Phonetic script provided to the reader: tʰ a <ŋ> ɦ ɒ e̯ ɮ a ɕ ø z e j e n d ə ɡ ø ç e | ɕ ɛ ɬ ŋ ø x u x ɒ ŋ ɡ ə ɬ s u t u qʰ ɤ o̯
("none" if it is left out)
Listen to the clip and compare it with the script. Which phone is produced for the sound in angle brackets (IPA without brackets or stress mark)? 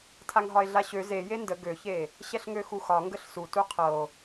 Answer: ŋ